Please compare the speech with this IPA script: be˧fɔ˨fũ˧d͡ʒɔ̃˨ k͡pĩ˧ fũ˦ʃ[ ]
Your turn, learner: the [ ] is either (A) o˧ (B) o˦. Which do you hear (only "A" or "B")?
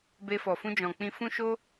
B